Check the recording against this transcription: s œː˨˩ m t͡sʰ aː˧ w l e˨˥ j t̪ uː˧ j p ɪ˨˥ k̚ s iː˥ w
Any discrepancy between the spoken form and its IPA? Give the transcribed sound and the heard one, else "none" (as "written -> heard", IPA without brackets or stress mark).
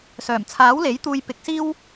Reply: aː˧ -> aː˨˥